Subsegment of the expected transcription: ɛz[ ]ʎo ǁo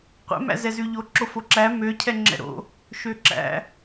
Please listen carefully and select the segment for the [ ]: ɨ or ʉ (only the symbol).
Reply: ʉ